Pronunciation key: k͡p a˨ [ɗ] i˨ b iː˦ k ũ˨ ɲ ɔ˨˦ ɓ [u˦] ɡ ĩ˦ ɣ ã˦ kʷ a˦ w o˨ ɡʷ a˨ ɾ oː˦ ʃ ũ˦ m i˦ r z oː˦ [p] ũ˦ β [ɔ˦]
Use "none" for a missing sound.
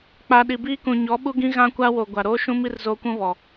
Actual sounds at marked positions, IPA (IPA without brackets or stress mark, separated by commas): ɗ, u˦, kʷ, ɔ˨